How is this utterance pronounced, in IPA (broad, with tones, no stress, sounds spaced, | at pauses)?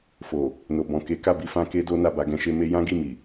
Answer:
f o˨ | n o˨ b ɔ̃˨ k e˨˦ k a˦˨ b i˨˦ f ã˧ k e˦ d o˦ n a˦˨ b a˧ ɡ ɛ̃˧ ʃ e˦ m e˦ j ã˦ ɡ i˦˨ m i˨